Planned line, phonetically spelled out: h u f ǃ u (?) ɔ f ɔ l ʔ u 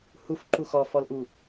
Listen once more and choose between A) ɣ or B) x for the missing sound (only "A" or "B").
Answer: B